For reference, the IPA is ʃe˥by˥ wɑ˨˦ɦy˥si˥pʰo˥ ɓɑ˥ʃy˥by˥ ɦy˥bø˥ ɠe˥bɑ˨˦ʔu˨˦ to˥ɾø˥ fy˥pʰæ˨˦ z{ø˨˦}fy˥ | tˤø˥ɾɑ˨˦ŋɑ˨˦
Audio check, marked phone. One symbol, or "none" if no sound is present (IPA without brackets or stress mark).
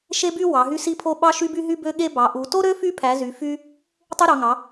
y˨˦